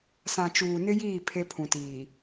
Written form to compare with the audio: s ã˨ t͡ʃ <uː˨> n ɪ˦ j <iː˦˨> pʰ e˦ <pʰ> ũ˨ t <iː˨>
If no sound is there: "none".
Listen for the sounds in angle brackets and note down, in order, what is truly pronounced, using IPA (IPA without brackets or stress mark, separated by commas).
uː˨, iː˦˨, pʰ, iː˨